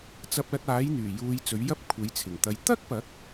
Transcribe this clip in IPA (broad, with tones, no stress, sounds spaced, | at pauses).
t͡s ɐ˧ p̚ l ɐ˧ t̚ aː˨˥ j n̪ yː˨˩ j uː˧ j t͡s ɵ˨˥ ɥ j ɐ˥ p̚ kʷʰ e˨˥ j t͡sʰ ɪ˨˩ ŋ t̪ ɐ˧ j t̪ ɐ˥ k̚ p ɐ˨˥ k̚